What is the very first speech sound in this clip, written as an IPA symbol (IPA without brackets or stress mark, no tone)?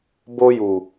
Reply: b